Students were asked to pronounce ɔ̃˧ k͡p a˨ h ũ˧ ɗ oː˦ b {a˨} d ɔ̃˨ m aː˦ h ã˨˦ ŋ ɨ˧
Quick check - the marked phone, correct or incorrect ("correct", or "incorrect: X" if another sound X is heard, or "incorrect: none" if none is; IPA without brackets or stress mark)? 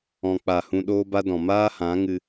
incorrect: a˦